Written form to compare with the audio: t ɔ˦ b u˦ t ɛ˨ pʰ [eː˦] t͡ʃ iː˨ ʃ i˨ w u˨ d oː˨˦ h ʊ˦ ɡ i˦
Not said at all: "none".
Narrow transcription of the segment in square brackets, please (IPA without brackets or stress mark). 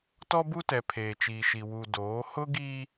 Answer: eː˨